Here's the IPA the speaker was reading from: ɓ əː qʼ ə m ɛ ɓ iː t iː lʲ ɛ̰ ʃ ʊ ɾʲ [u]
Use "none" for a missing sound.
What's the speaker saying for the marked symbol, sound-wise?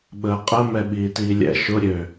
ø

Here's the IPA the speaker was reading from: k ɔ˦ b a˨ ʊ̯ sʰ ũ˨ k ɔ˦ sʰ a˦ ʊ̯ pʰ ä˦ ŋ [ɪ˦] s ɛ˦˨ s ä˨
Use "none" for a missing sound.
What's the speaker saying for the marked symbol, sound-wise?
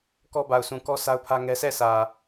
ɛ˦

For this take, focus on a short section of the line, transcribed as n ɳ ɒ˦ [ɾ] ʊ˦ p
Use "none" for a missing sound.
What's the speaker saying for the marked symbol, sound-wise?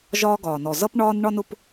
n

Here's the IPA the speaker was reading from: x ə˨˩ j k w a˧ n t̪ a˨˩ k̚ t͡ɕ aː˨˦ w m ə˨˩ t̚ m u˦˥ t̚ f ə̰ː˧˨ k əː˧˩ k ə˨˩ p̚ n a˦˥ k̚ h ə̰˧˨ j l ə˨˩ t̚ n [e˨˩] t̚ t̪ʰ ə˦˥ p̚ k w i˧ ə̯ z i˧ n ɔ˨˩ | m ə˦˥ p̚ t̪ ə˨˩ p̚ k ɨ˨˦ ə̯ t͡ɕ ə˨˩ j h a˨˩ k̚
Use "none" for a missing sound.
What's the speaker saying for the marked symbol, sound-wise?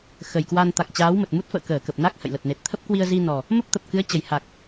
e˨˩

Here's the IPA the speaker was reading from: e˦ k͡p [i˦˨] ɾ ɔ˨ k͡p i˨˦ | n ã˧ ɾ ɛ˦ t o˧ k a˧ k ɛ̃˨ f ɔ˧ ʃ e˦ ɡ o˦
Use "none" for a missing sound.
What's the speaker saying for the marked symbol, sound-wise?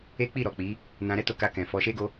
i˦˨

